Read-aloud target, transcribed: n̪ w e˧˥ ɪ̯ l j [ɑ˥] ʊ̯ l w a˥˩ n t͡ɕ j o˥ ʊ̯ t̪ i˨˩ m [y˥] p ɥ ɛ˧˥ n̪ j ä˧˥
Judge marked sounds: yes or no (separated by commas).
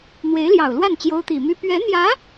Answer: no, yes